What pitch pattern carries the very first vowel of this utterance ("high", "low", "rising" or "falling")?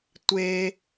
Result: low